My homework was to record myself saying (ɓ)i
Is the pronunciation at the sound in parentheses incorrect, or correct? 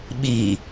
correct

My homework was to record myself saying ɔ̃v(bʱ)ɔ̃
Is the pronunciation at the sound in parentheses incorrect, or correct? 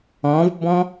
incorrect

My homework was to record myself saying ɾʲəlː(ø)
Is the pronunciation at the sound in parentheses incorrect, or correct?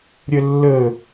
incorrect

